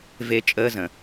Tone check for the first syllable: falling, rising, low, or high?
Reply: high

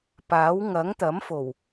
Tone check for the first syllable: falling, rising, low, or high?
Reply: rising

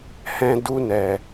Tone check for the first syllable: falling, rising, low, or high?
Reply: high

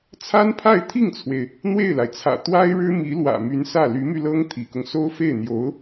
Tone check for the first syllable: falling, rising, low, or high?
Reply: high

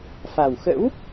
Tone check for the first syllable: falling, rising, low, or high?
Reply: low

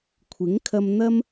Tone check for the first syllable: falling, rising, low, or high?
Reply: rising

